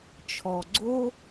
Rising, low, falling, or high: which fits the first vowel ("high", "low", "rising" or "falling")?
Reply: low